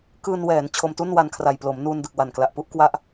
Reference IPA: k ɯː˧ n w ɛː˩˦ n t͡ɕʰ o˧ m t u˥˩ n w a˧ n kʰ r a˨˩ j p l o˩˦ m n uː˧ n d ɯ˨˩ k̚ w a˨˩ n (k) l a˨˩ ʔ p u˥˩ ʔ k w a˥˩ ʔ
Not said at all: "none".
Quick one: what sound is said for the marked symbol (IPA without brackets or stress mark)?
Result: k